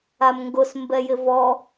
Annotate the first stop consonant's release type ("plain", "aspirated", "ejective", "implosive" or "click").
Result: plain